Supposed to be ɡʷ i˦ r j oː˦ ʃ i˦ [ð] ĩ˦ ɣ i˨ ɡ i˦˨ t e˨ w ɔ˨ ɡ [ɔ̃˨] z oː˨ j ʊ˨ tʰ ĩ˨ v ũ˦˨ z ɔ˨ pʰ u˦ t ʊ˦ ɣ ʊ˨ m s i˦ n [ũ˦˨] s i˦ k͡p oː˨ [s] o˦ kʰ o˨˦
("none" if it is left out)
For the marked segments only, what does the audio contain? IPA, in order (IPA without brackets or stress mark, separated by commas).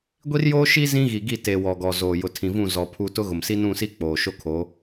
z, ɔ˨, ũ˦˨, ʃ